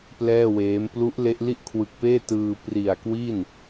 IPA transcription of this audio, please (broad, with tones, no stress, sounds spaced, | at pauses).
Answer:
p l ɛː˥˩ w eː˦˥ m p l u˦˥ ʔ l e˦˥ ʔ l i˥˩ ʔ kʰ w ɯ˨˩ k̚ p eː˥˩ t ɯː˧ p r i˨˩ a̯ k w i˥˩ n